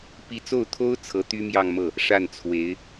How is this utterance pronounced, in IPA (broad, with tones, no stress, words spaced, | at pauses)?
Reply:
pi˧˥t͡so˥˩ʊ̯t̪ʰo˥ʊ̯ t͡sʰɤ˧˥t̪y˥mjɑ˥˧ŋmɤ˥˩ | ʂa˥˩nt͡sʰwe˧˥ɪ̯